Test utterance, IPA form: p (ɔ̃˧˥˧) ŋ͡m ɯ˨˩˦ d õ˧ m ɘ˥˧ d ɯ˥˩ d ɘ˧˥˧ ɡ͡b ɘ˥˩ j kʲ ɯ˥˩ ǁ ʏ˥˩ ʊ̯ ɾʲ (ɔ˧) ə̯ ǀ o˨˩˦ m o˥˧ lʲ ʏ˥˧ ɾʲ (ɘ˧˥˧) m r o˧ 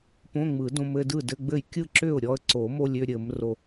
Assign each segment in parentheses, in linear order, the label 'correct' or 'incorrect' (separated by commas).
incorrect, correct, incorrect